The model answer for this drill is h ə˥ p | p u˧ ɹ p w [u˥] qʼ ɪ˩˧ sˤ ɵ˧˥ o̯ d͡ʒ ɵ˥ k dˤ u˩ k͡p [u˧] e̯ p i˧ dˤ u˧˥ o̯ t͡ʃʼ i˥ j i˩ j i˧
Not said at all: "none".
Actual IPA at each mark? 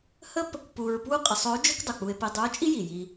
u˥, u˧

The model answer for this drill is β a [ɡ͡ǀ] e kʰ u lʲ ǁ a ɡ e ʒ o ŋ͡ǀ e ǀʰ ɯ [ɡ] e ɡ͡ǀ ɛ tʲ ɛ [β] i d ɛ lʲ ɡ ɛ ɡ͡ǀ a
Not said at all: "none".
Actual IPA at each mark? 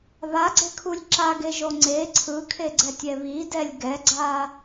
ɡ͡ǀ, kʰ, β

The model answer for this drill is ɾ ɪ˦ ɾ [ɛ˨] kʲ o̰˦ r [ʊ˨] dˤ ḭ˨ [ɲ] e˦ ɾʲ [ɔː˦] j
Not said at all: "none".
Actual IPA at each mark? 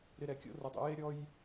ɛ˨, ʊ˨, j, ɔ˦

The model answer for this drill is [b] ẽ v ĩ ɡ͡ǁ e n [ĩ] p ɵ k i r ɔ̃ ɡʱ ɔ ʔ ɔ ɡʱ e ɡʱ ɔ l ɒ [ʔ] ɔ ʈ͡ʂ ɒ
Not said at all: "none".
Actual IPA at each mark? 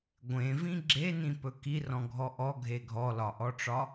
ɡʷ, ĩ, ʔ

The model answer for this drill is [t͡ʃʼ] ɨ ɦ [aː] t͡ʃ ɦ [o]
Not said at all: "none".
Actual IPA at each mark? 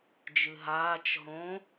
d͡ʒ, aː, õ

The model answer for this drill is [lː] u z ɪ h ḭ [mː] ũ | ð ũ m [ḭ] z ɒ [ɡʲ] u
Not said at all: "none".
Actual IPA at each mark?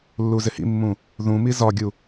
lː, mː, i, ɡʲ

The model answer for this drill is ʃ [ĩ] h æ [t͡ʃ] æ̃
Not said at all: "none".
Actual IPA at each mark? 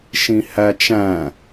ĩ, t͡ʃ

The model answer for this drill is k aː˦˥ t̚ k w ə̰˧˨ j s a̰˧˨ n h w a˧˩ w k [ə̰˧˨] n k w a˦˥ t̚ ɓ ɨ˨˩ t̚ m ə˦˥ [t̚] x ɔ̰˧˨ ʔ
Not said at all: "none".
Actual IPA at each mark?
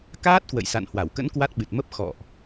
ə̰˧˥, p̚

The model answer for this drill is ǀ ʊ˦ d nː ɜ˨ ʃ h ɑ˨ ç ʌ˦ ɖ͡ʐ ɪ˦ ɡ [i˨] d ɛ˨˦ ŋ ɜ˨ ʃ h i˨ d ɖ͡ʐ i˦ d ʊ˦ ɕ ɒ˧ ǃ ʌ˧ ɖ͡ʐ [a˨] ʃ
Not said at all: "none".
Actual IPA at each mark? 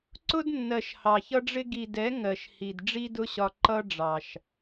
i˨, ɑ˨

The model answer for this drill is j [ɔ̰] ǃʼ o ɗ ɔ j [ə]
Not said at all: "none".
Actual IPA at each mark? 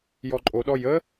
ɔ, ə

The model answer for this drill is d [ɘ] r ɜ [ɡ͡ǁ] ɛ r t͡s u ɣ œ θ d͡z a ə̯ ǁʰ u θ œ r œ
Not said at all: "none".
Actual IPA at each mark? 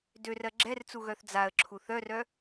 ø, ɡ͡ǁ

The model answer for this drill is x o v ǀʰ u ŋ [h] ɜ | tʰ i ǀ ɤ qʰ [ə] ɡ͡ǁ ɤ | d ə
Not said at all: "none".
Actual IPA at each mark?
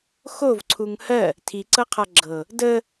h, a

